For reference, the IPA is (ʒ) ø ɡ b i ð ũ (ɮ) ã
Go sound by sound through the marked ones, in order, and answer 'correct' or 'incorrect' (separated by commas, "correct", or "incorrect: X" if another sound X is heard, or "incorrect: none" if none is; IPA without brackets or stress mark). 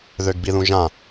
incorrect: ð, incorrect: ʒ